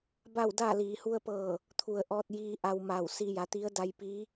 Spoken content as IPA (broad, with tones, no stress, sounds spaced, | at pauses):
b a˥˨ w d aː˥˨ l iː˩˧ h u˧ ə̯ p ɤː˧˩ | t̪ʰ u˩ ə̯ ʔ ɔː˧ t̚ j iː˧ ʔ a˧ w m a˧˩ w s i˧ j a˩˧ t̪ i˧˥ ə̯ d a˧ j p iː˧˥